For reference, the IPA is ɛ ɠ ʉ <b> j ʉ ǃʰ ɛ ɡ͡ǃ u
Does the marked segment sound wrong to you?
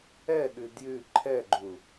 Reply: yes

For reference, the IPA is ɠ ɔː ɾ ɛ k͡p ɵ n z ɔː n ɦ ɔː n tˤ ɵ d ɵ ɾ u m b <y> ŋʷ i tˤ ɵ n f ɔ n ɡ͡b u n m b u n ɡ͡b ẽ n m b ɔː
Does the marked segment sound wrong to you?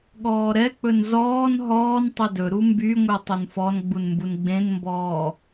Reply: no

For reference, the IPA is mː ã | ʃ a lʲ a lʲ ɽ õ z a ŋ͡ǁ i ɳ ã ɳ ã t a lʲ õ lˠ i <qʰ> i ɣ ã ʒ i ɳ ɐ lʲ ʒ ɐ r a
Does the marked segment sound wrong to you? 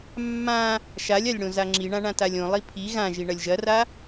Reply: yes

